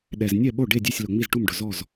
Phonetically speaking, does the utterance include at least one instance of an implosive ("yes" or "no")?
yes